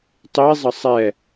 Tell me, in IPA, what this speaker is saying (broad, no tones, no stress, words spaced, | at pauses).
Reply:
tˤizˤʌ sˤɛ